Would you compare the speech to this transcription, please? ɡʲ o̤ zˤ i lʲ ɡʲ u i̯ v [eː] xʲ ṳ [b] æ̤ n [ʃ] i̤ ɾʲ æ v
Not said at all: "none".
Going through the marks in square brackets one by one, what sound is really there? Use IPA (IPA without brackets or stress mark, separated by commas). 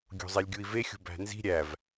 e, b, z